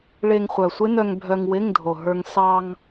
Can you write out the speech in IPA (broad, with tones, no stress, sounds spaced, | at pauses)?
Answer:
ɭ e˧ ŋ χʷ œ˨˩ sʷ ɪ˦˥ n œ˧ ŋ bʱ œ˧ ŋ w ɪ˧˥˧ ŋ dʱ o˨˩ ɦ ə˞˧ ŋ s ɑ˧ ŋ